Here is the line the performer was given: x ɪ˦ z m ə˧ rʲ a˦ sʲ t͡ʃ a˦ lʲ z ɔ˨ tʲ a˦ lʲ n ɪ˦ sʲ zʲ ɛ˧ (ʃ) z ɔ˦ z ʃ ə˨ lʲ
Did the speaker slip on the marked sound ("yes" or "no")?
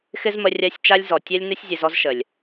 yes